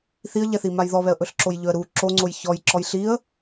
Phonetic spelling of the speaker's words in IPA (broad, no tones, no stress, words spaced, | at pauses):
θiə̯ʎɛθi majðɔβɛə̯ ʔɵɬǁojʎɵə̯ɾu ǁoŋ͡ǀoj çɔj ǁɔjɬiə̯